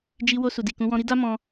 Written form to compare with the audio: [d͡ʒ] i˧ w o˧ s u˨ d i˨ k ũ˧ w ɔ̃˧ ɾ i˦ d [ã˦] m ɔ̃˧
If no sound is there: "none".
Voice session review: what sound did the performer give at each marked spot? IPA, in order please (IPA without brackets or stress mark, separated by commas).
d͡ʒ, a˦